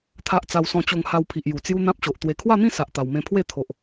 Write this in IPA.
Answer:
t̪ʰ a˦ ʔ t͡s a˧ w s ɔ̃˧ t͡ɕ o˧ ŋ h a˧ w pʰ i˨ ʔ j u˨˩ t͡s j u˦ n̪ ã˦ p̚ ɕ o˨ ʔ t̪ w e˨˩ kʰ w a˥˧ n̪ ĩ˥˧ s a˨ ʔ t̪ a˨˩ w m ẽ˧ pʰ w e˥˧ t̪ʰ o˨ ʔ

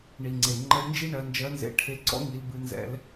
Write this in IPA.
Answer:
ɳ i˩ ŋ͡ǀ e˩ ŋ͡ǃ ə˧˥ l n d͡ʒ i˥ ɳ ɜ˩˧ n d͡ʒ ɜ˧˥ n z ḛ˧ ʈʰ e˧ ǀ ɔ̰˥ ŋ i˩˧ l b ɨ˩˧ n z ɛ̰˩˧ l

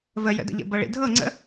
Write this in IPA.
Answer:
v ə j ə̰ d ə̰ ʎ ə̰ b ʌ ɭ ḭ dʱ ɤ ŋ͡ǀ ə̰

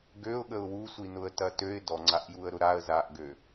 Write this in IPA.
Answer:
ɡ ø ʊ̯ ɠ ə ʊ̯ w u sʷ i n ʊ ə̯ t ɐ t ø ɪ̯ d ɔ ŋ͡ǀ a ʔ j u ə̯ ɾ ʊ ɾ a ə̯ z a ʔ ɡ ø

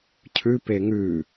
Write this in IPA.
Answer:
cʰ ʉ p e ŋ ʉ

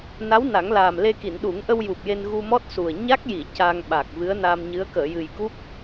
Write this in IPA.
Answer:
n a˧˥ w n a˨˩˦ ŋ l aː˨˩ m l e˧ k i˨˩˨ n ɗ u˨˩˦ ŋ ʔ ə˧ w j u˨˩ p̚ j e˧ n ɣ u˧ m ɔ˦˥ t̚ s u˨˩ ə̯ ɲ a˦˥ k̚ j i˨˩˨ c a˧ ŋ ɓ a˨˩ k̚ v ɨ˧˥ ə̯ n a˧ m ɲ ɨ˧˥ ə̯ k əː˨˩˨ j ɨ˨˩ j k u˦˥ p̚

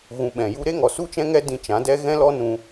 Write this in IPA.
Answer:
ɣ ũ˧ ɓ ɛ̃˨ j u˧ ɾ e˦ ŋ ɔ˨ s u˦ t͡ʃ ɛ̃˦ ŋ ɛ˦ d ĩ˧ t͡ʃ ã˨˦ d ɛ˦ ɣ ɛ̃˦ l ɔ˦ n ũ˧

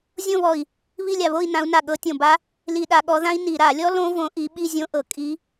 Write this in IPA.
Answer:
zʲ õ˥˧ β ɔ˧˩ i̯ | β i˥˧ lʲ a˧˩ β o˥˧ i̯ n ã˨˦ u̯ n a˧˩ ɠ ɤ˨˦ tʲ õ˧˩ b a˦˥ | l i˧˩˧ ɗ a˧˩˧ ɠ ɔ˨˦ ð ã˦˥ i̯ n i˧˩˧ ɾ a˧˩˧ lʲ ɔ˦˥ l õ˦˥ v õ˨˦ ʔ i˨˦ ɓ i˥˧ zʲ õ˦˥ ʔ ɤ˧˩ kʼ i˦˥

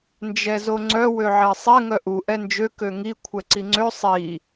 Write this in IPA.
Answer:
n d͡ʒ ɛ z o ŋ͡ǀ œ w ø ʕ ɛ sˤ ɛ ŋ œ ʔ u ʔ ɛ n d͡ʒ ø k ø ŋ i kʷʰ ɛ ǀ i ŋ͡ǀ ø sˤ i

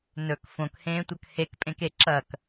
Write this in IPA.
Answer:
n ɵ k f õ k h ẽː tʷ ɐ k h e k pʼ ẽ k e ǁ ɐ k

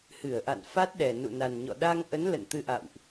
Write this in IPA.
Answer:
h ɨ˧˩ ə̯ ʔ a̰˧˨ n f a˦˥ t̚ ɗ ɛ˨˩ n ṵ˧˨ n a˨˩ n ɲ ɔ̰˧˨ ɗ a˧ ŋ ʔ ə˨˦ n l ə̰˧˨ n t̪ ɨ˧ ʔ a̰˧˨ w ʔ

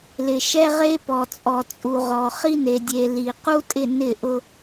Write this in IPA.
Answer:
l ɪ˨ ʃ ɛ˦ ʁ e˦ p ɔ˨ t͡sʼ ɔ˨ t͡sʼ u˨ ʁ ɔ˨ χ i˦ n e˨ dʲ e˨ l i˨ q u˦ tʼ ɪ˦˨ n ɪ˦˨ ʔ ʊ˦

